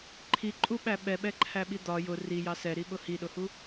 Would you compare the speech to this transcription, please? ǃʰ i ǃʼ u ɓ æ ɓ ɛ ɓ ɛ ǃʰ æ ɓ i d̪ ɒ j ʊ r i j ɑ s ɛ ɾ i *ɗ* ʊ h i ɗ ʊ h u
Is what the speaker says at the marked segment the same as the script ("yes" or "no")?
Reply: no